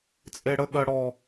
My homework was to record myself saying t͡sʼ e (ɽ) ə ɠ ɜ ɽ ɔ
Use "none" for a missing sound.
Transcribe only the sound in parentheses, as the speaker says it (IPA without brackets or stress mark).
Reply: ɽ